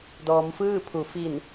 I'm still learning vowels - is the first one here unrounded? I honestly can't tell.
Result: no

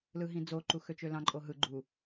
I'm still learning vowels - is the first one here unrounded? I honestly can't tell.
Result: yes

